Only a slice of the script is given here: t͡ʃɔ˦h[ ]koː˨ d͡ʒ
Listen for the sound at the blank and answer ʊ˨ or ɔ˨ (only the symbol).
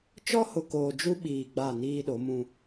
ʊ˨